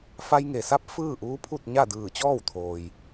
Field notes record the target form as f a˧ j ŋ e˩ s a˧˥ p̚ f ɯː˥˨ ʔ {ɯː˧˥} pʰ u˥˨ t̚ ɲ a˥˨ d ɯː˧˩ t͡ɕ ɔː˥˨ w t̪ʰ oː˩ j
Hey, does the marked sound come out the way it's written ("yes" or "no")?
no